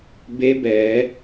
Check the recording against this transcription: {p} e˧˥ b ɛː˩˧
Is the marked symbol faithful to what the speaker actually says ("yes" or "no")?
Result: no